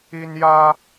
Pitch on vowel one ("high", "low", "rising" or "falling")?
high